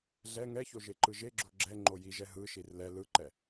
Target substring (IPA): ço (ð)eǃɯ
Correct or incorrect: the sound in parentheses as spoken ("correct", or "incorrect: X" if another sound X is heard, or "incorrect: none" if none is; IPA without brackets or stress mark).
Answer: incorrect: ʒ